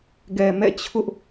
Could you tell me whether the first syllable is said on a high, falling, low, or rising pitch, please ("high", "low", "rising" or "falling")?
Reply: low